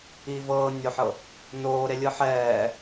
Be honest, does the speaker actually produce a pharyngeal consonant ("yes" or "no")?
yes